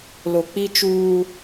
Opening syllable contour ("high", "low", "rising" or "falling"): low